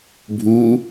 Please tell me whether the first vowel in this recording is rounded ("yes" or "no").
yes